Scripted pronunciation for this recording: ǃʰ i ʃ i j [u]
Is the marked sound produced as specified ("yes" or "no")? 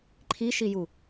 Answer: yes